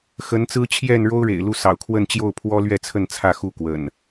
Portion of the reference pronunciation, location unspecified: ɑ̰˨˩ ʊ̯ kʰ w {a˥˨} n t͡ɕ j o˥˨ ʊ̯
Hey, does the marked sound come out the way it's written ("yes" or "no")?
no